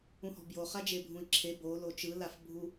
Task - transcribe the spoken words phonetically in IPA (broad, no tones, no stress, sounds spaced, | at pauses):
ũ h ɔ̤ b j o χ a d͡ʒ e bʱ ũ i̯ ǁʰ e b o l o t͡ʃ ɯ l a f bʱ u